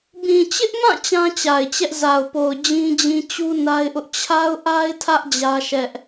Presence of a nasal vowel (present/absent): present